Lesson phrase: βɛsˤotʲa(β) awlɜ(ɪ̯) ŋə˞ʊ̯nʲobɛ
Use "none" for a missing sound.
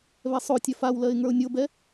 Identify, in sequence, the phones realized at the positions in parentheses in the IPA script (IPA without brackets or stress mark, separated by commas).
f, ɪ̯